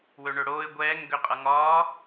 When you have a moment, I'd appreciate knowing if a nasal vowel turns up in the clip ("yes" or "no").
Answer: no